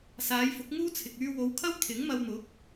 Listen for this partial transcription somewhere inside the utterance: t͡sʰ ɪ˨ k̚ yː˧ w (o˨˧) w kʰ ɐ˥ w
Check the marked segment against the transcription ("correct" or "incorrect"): correct